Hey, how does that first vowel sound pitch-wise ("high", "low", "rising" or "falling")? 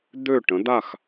falling